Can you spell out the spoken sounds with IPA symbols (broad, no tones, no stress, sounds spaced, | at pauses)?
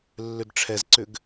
lː ʏ d ʈ͡ʂʰ ɛ z ǀ ʏ ɡ